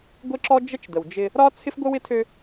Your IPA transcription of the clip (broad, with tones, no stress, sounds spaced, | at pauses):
ɡʷ ɪ˦ ǁ ɔ˦ d͡ʒ ə˦ t͡ʃ d ə˨ w d͡ʒ ɪ˦ | ɾ ɒ˦ t͡sʰ ɪ˦ f ɡʷ ə˦ w ɪ˦ tʰ ø˦